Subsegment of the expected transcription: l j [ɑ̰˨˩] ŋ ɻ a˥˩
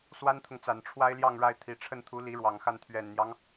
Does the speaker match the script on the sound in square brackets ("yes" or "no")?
no